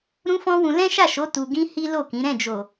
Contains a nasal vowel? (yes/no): yes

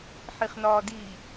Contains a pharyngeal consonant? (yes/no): yes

